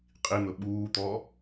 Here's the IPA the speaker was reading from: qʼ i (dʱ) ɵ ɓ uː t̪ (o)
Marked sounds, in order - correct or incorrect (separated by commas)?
incorrect, incorrect